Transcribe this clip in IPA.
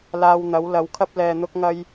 laː˧wn̪ɐ˨˥wlɐ˨˥w kʰɐ˥p̚lɛː˧ n̪ʊ˥k̚ŋɐ˥j

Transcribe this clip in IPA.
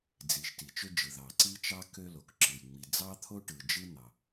d͡zi˩ʃ ti˩t͡ʃø˥d͡ʒɯ˩ ðɑ˩ǀi˥t͡ʃɑ˥ kø˥lo˩kǁɯ˩j ŋ͡mi˩d͡zɑ˥t̪ʰo˥ʈɯ˩ d͡ʒɯ˥n̪ɑ˩

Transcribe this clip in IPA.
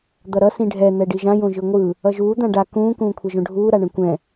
d̪ʌɾʌ sĩɖʱɛ n̪ɛɖiʒã jõʒɯŋʷɯ | ʌʒuː d̪ãɖa kũː kũːkʷʰɛʒõɖʱuː ɾaɳɛ̃kʷɛ̃

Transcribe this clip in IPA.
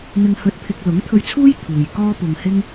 n̪ɪ˧ŋhɵ˧t̚pʰɪ˧k̚ lʊ˨˥ŋt̪ʰɵ˧ɥt͡sʰuː˥j t̪ʰuː˨j kɔː˥pʊ˨ŋhɪ˥ŋ

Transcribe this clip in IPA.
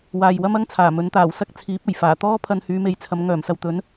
waː˨jwɐ˥mɐ˥ŋt͡sʰaː˨˩ mɵ˨˥nt̪aː˨˩w sɐ˥k̚ t͡sʰiː˨˥p̚ɐ˨˩jfaː˨˩ t̪ɔː˥pʰɐ˧nhyː˨˧me˨j t͡sʰɐ˨˧m ŋœː˨˩msɐ˨wt̪ɵ˨˥n

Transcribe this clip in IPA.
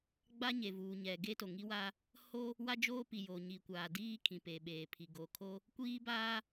ɡ͡ba˦ɲe˨vuː˨ɲɛ˨ ɡe˦to˨ŋi˦wa˦ | ho˦ | wa˦d͡ʒoː˦pi˨ jo˨ɲi˨kʷaː˨ diː˦kʰĩ˨ pe˨ɓeː˨pʰi˨ ɡo˨kʰo˦ | kʷiː˦baː˦

